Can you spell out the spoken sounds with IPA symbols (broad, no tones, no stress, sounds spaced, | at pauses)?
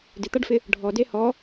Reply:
d ɪ t̪ a ɖ f ɪ | ɖʱ ɔ d e h ɔ